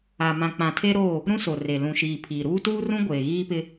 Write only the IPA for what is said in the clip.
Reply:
a˨ m ã˨ k͡p ã˨ tʰ e˦ ɾ oː˦˨ | ɾ ũ˦ s o˨ r e˨ l ũ˨ ʃ iː˨ pʰ iː˨ ɾ uː˦ t uː˦ r ũ˦ ɡʷ eː˨ ɣ iː˦ p ɪ˦

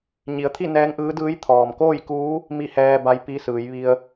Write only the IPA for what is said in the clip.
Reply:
ɲ i˩˧ ə̯ t̪ʰ i˥˨ n ɛː˧˥ ŋ ʔ ɯː˧˥ d ɯː˧˥ j t̪ʰ ɔː˩ m k oː˥˨ j k uː˧˥ | m i˥˨ h ɛː˧ b a˧˥ j p i˧˥ s ɯː˩˧ j ʋ i˧ ə̯

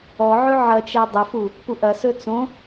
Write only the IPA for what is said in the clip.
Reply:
ɔ ʕ ɵ ʕ ɐ t͡ʃ æ dˤ ə f u | p u ʔ ɐ s ɵ t͡s õ

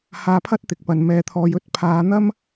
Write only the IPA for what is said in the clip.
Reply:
h aː˧ pʰ ɐ˥ t̚ t̪ ɪ˨ k̚ p ɐ˨ n m ɛː˧ t̪ʰ ɔː˧ j ɵ˥ t̚ pʰ aː˨˧ n̪ ɐ˥ m

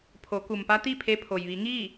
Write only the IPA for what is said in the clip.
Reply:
pʰ o˩˧ k u˩ m p a˧˥ t̪ i˥˨ pʰ e˧ pʰ o˩ j ʋ i˩˧ ŋ iː˥˨

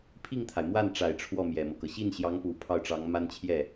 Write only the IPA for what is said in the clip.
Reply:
pʰ i˥˩ ŋ t̪ʰ a˩ ɪ̯ m w a˥˩ n ʈ͡ʂ a˨˩ ɪ̯ ʈ͡ʂʰ w ɔ˥˩ m j ɛ˨˩ m ɤ˦ k ɤ˩ ɕ i˥˩ n ɕ j ɑ˧˥ ŋ p u˨˩ pʰ ɑ˥˩ ʊ̯ ʈ͡ʂ ɑ˧˥ ŋ m a˥ n t͡ɕʰ j ɛ˥˩

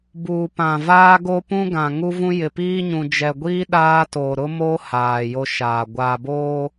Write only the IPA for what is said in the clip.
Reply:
b uː˨ p ã˨ v aː˦ ɡ o˦ p ũ˦ ɡ ã˨ ŋ u˦ v ũ˦ j ɪ˨ p iː˦ ɲ ũ˨ d͡ʒ ɛ˨ ɡʷ iː˦ ɗ aː˦ t o˨ ɾ ʊ˦ m o˦ h aː˨ j o˦ ʃ aː˨ ɡʷ a˨ b oː˦

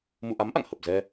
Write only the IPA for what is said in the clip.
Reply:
m ṵ˧˨ ʔ a˨˦ m ʔ a̰˧˨ ŋ h ə˨˩ p̚ z ɛ˧

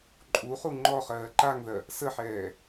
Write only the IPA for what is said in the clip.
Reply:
ǃʼ u χ u ŋ͡ǃ ɔ χ ɜː ǃ a ŋ ð ɜ | s ə ħ ɛː

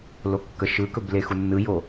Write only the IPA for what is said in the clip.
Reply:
l o kː ə ʃ ɯ k ɵ b l e x u nː ɯ j o

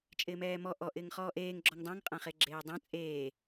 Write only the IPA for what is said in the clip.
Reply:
t͡ʃʼ ɪː m ɛː m ɔ ʔ ɔ ʔ ɪː ŋ χ ɔː ʔ eː ŋ ɡ͡ǁ ɔ ŋ dˤ ã ŋ qʼ ã χ e ɡ͡ǁ eː dˤ ã t͡sʼ eː

